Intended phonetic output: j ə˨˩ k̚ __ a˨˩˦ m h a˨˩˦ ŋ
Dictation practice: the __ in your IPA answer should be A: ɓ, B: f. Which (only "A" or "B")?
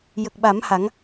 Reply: A